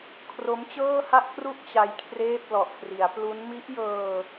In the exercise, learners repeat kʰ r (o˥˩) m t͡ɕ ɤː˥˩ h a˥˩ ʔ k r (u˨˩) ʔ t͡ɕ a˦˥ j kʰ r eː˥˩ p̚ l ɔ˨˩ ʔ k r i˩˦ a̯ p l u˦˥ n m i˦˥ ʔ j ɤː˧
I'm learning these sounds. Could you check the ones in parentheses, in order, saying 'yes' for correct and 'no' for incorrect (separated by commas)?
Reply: no, no